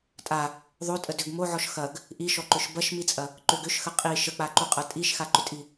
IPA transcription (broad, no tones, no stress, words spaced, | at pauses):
tʼa | ðˤotʼə dʏɡ moʕɔʃ xɐɡ | ʔiʃɔǃʏʃ bɐʃmit͡sʼɐ | ǃʏɡ ʏʃxə qʼi ʃək͡paǃuqʼɐ tʼiʃxaǃʏtʼi